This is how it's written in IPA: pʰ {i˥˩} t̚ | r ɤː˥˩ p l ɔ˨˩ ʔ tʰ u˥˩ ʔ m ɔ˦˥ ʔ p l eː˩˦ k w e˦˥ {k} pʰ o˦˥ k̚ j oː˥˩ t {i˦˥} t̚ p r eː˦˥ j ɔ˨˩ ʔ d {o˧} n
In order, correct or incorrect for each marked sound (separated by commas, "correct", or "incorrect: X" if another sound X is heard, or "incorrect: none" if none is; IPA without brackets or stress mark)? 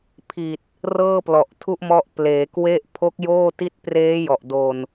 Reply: incorrect: i˨˩, incorrect: ʔ, correct, correct